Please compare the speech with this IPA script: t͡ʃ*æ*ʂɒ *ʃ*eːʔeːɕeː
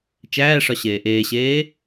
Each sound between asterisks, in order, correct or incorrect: incorrect: æː, incorrect: ɕ

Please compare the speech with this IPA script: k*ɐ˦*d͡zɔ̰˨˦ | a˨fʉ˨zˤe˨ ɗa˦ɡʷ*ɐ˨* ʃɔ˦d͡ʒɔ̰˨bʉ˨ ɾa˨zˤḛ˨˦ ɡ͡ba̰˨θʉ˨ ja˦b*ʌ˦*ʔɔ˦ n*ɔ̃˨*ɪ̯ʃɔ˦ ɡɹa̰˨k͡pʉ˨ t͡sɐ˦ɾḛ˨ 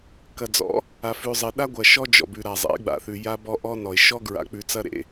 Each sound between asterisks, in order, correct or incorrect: incorrect: ɐ˨, correct, incorrect: ɔ˦, incorrect: ɔ˨

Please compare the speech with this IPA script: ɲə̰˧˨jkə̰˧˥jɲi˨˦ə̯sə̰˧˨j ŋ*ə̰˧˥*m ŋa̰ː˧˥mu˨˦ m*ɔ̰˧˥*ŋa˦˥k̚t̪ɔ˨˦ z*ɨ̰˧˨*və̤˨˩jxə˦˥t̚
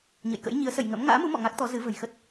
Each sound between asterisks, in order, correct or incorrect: correct, incorrect: ɔ̰˧˨, incorrect: ɨ˨˦

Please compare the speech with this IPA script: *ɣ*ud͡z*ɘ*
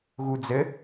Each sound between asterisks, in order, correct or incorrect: correct, correct

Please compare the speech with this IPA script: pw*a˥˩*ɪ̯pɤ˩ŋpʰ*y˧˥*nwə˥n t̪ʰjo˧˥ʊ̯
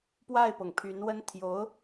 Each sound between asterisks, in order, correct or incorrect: correct, correct

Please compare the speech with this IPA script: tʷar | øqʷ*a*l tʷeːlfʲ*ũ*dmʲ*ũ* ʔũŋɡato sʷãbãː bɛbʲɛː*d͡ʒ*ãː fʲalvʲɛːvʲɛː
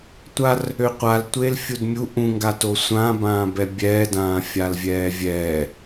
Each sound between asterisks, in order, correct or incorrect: correct, incorrect: u, incorrect: u, incorrect: d

